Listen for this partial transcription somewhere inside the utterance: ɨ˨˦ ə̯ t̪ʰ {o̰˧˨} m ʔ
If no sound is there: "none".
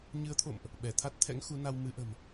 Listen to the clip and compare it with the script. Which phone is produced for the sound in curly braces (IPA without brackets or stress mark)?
o̰˧˨